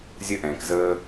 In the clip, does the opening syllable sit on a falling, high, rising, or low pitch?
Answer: high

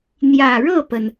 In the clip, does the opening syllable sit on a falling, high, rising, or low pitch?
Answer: low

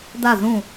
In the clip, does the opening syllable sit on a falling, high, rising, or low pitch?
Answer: falling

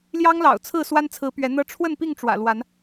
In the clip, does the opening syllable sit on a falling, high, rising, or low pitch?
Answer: high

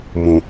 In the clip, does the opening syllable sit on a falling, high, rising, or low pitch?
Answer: low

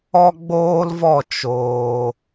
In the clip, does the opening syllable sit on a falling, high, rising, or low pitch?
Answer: high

